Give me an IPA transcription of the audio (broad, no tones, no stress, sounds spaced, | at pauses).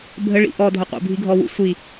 bʱ ə ɭ ḭ ʔ ɔ dʱ ə qʷ ə̰ bʱ i ɡʱ ɔ w ṵ sʷ i